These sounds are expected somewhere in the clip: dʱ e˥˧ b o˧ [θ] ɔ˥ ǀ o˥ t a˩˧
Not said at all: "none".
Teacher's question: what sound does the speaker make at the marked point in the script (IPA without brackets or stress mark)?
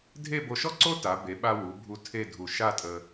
ʃ